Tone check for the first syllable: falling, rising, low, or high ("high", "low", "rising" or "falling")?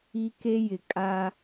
high